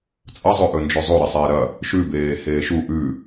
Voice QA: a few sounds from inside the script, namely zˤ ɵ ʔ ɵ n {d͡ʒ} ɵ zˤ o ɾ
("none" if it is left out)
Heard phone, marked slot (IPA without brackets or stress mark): d͡ʒ